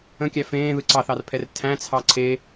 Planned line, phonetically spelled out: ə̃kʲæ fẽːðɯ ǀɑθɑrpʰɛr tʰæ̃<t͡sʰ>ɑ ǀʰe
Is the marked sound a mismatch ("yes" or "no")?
no